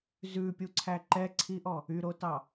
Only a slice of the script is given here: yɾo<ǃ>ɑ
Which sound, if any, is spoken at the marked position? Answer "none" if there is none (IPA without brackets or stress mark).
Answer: t